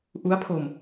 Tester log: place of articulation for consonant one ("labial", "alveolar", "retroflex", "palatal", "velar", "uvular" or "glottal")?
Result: glottal